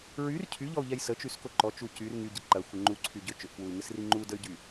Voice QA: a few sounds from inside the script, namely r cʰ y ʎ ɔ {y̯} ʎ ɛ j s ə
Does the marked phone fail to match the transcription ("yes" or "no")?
yes